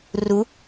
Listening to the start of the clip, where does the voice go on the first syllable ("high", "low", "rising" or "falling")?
rising